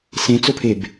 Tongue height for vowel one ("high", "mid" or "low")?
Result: mid